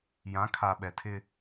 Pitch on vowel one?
rising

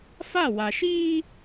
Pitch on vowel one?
falling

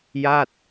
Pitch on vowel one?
falling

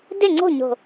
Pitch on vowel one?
falling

